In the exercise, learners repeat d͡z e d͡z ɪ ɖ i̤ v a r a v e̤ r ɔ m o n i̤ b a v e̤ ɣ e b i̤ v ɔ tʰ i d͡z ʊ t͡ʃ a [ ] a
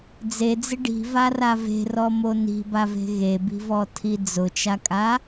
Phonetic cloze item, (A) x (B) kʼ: B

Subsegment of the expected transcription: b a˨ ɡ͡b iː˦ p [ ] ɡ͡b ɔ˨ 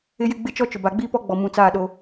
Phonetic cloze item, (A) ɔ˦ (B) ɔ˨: A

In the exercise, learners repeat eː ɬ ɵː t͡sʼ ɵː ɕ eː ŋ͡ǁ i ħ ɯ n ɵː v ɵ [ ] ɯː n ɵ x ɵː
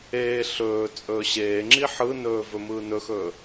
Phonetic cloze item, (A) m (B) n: A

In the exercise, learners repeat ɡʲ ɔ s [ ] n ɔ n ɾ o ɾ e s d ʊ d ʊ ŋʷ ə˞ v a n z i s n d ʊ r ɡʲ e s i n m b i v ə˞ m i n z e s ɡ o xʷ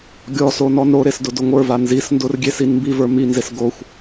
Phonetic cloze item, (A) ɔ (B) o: B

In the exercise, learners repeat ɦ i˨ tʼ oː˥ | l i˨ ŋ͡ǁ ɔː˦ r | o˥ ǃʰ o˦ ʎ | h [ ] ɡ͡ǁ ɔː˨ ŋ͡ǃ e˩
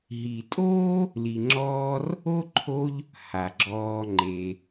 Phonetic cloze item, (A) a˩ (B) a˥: A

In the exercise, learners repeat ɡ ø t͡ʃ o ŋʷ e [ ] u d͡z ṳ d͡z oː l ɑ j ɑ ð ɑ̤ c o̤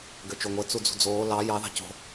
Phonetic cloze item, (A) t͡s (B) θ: A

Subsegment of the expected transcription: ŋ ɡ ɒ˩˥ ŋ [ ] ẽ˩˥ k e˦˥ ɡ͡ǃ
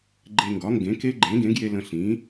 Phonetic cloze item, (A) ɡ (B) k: A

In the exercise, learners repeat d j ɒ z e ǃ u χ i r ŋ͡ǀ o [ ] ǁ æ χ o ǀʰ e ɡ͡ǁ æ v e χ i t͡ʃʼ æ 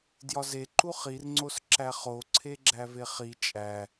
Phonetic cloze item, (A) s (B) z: A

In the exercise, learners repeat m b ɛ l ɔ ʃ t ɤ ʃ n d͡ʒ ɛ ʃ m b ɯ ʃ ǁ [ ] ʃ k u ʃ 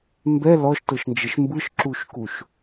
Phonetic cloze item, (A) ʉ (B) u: B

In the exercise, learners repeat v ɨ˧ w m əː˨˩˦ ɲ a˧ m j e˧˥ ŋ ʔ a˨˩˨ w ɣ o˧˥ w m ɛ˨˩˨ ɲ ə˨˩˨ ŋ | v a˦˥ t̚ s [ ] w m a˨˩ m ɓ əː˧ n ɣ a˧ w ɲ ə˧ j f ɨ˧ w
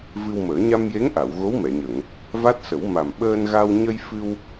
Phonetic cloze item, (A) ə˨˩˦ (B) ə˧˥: A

